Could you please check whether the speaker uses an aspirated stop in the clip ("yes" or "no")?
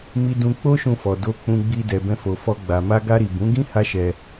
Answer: no